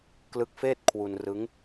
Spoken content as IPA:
k l ɯ˦˥ k̚ f eː˥˩ t̚ kʰ w u˧ n r ɯ˦˥ ŋ

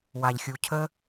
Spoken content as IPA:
w a˨ ʎ xʲ u˨ cʰ ə˦

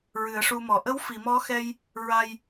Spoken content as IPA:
ɹ ɨ˨˩˦ ə̯ ʂ u˧ m ɔ˨˩ ʔ ə˧˥ w f i˨˩˨ m ɔ˧˥ x ɛ˧ j | ɹ a˧ j

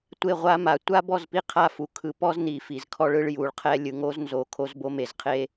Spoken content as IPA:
tʷ e˦˨ ʁʷ a˦ m a˨ tʷ a˦ b ɔ˦˨ z p i˦ qʰ a˦ f u˨ kʰ ɯ˨ p ɔ˦ z n i˨ f i˨ z kʰ ɔ˦ ɭ ɯ˦ ɭ j u˨ ɭ qʰ ɛ˦ lʲ ɯ˨ ŋ o˦ z n z o˨ kʰ o˦ z b o˦ m e˨ z qʰ e˦

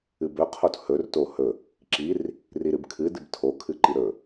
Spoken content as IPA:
ɨ b ɵ qʰ o t h ɵ r t o h ɵ | ǁ i r | r i ɾ ɨ b kʰ ɨ d ɨ b tʰ o kʰ ɨ ǃ i ɾ ɵ

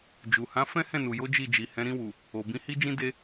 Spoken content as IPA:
d͡ʒ u˨ h ã˨˦ f ɛ̃˦ h ɛ̃˦˨ n u˨ j o˨˦ d͡ʒ i˦˨ d͡ʒ i˨ h ɛ̃˨˦ ɾ ĩ˧ w u˨ | o˨ b ĩ˨˦ h i˦ d͡ʒ ĩ˦ d e˦

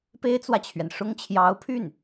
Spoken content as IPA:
p e˥ ɪ̯ t͡s w ä˨ t͡ɕʰ ɥ ɛ˩ n ʂ ʊ˥ ŋ t͡ɕʰ j ɑ˧˥ ʊ̯ pʰ y˥˩ n

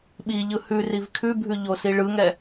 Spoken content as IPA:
ɓ i ʎ ɯ h ʉ r i v kʰ ʉ bʱ ʉ ʎ o s i ɭ ɯ ŋ ɛ

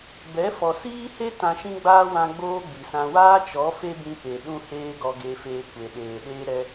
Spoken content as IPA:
b ɛ˨˦ f ɔ˨ s iː˦ h e˦ t ã˧ ʃ ĩ˦ ɡ͡b aː˦ w ã˧ ɡ͡b oː˦ ɡ͡b i˨ s ã˧ w aː˦ t͡ʃ ɔ˨˦ f e˦ b ĩ˧ p e˨ ɗ ũ˧ h eː˧ ɡ ɔ˧ ɡ e˧ f eː˧ kʷ e˨ ɗ eː˨ ɗ eː˧ ɾ ɛ˧

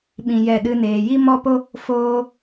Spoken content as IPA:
ɓ ĩ˧ j ɛ˦˨ ɗ ɨ˦ n eː˧ j i˦ m ɔ˦ p o˦ | f oː˦

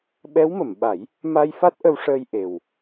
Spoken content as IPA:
ɓ ɛ˧˥ w m ə˨˩˨ m ɓ a˨˩˦ j | m a˧ j f a˦˥ t̚ ʔ ə˧ w ʂ əː˧ j ʔ e˨˩ w

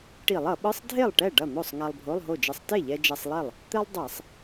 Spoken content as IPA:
ʈ i˧˩˧ lˠ ʌ˧˩˧ ɓ ɯ˧˥˧ sˤ dʱ e˥˩ lˠ ʈ ɛ˥˩ ɖ ʌ˥˩ n̪ o˥˩ sˤ ŋ a˧ lˠ bʱ o˧˥˧ lˠ ɦ o˥˩ d͡ʒ ɯ˧ sˤ t e˥˩ ʎ ɛ˧ d͡ʒ ɛ˧ sˤ lˠ e˥˩ lˠ | t̪ ɛ˥ lˠ dˤ ɛ˧˩˧ sˤ

